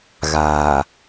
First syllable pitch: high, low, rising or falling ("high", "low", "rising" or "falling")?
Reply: low